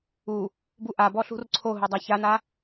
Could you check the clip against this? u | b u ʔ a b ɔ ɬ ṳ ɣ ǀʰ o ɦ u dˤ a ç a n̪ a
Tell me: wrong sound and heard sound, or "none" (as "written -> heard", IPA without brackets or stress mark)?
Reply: ɣ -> r